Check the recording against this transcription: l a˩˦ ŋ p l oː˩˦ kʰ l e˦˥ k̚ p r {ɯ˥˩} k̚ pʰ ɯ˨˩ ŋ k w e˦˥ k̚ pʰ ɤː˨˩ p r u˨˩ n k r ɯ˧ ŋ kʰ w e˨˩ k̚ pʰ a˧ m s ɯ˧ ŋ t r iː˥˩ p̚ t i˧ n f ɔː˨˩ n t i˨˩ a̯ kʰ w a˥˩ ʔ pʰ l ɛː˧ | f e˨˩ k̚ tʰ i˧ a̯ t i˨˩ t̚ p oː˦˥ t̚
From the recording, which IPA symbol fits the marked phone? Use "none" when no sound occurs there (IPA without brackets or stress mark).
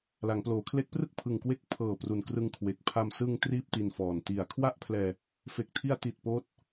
ɯ˥˩